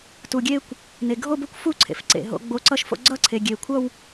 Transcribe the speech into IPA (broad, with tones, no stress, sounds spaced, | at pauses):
t u˩ ɡʲ e˥˧ kʷ | n e˩ ɡʱ o˥˧ b o˥˩ kʷ f u˥˧ ǀʰ ḛ˩ f ǀ ḛ˩ ɦ o̰˨˦ ɡ͡b o˧˥˧ ǀ ʌ˥˧ ʃ f o̰˥˧ ɡ͡ǀ ʌ˥˧ ǀʰ e˩ ɡʲ e˩ kʷʰ ʌ˥˧ w